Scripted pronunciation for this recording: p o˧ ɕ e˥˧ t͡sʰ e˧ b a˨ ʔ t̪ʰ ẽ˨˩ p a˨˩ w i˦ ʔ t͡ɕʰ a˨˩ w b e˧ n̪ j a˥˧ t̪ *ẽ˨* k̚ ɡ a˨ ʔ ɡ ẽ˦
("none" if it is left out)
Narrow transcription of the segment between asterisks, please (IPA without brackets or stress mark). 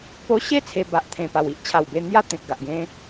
ẽ˨